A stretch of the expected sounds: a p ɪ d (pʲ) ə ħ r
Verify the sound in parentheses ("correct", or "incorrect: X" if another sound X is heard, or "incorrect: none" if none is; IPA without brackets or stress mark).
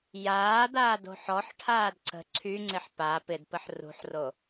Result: incorrect: p